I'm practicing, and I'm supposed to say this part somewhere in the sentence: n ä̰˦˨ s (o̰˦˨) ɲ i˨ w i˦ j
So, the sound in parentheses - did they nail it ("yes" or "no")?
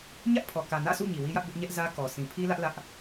no